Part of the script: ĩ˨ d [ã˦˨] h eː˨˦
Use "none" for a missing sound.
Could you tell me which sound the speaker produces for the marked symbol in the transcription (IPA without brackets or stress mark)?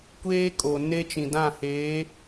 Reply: ã˦˨